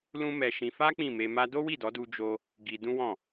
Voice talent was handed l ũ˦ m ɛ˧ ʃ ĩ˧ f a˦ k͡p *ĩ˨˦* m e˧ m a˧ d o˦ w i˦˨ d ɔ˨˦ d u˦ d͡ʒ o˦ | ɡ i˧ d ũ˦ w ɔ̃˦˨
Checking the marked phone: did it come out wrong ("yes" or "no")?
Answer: yes